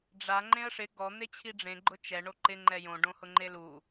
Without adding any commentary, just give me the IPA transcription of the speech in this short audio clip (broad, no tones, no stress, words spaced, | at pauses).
ɖ͡ʐa ŋ͡ǃẽə̯ʂɪ ɡɔ n̪et͡ɕʰiɖ͡ʐẽ ɡ͡ǃʊt͡ʃɛ ɳoǃɪ ŋ͡ǃɛjõ ɖõhʊŋ͡ǃelu